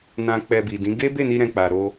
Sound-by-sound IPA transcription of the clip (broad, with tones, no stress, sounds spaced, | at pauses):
n ã˧ k͡p ɛ˧ b i˨ d ĩ˨˦ ɡ e˦ b e˦˨ n i˧ ɾ ɛ̃˧ k͡p a˨ ɾ o˧